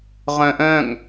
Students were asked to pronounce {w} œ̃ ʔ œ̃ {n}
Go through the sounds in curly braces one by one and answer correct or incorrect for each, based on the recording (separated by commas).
incorrect, incorrect